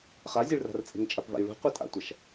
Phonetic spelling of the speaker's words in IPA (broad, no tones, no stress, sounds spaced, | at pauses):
χ a zʲ e ɭ r a̤ r t͡sʼ e̤ ŋ t͡ʃʼ a p v a̰ j ɭ ṳ qʷ e tʼ a̰ tʷ a ʃ